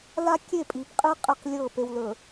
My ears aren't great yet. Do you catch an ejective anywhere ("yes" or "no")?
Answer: yes